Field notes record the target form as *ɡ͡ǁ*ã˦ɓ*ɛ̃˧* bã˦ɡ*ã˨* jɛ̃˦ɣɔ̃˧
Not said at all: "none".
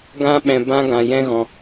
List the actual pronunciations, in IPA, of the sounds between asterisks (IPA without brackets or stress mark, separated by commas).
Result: ɡ, ɛ̃˧, ã˧